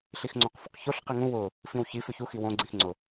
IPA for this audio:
ɬ i x ŋ͡ǀ õ q f ʊ q ç o ɬ q i ŋ ũ w ʊ | f ĩ w ç i f ʏ ç u x i w õ ɡ͡ǀ ĩ x ŋ͡ǀ ʊ

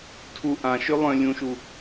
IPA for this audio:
tʰ u ʔ ã ʃ ø lˠ œ̃ lʲ ũ ʃ u

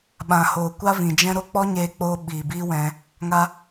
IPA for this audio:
ɓ ã˨ h oː˨ kʷ a˦ v ĩ˨ d͡ʒ ɛ̃˦ ɾ o˦ k͡p ɔ˦ ɲ eː˧ k͡p oː˧ ɓ iː˨ b iː˦ w ɛ̃˧ | ŋ a˧

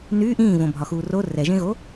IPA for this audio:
n y ʔ ĩː v õ bʱ ɒ x uː r o r ɛ ʒ ẽ ɣ o

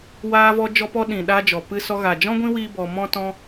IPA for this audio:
w aː˧ v ɔ˧ d͡ʒ ɔ˧ p ɔ˧ ɗ ĩ˨ ɗ a˧ d͡ʒ ɔ˨ p ɨ˧ s ɔ˧ ɣ a˨ d͡ʒ ɔ̃˦ ɡʷ ĩ˦ w iː˦ b ɔ˧ m ɔ̃˦ t ɔ̃˧

